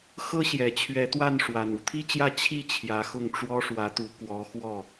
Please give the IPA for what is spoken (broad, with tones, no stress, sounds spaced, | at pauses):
x ɤ˥ ɕ j ɛ˨˩ t͡ɕʰ ɥ ɛ˧˥ t̪ w a˥˩ n ʂ w a˨˩ n u˧˥ t̪ʰ i˥ t͡ɕ j ä˥˧ t͡ɕʰ i˥˩ t͡ɕʰ j ä˧˥ x ʊ˥˩ ŋ ʈ͡ʂ w ɔ˥ ʂ w ä˧˥ t̪ u˧˥ k w ɔ˧˥ x w ɔ˥˩